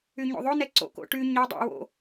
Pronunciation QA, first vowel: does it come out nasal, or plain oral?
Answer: oral